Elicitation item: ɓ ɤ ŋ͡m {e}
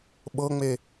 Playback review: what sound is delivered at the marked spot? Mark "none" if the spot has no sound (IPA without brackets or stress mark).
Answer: e